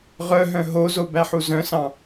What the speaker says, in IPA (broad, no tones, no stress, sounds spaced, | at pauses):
ʁ œ ɦ œ̃ ɦ o z o b æ ħ u z œ̃ s ɑ̃